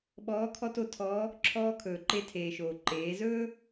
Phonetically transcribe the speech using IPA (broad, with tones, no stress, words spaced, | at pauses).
ɓɔː˧˥kʰɔ˥to˧tʰɔː˧˥ | ǁʰɔː˧ kʰɵː˩ǃe˧tʰeː˩ʃoː˩ ǃeː˩˧zɵː˥